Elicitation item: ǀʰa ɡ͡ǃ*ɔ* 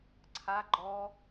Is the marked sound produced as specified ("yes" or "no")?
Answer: yes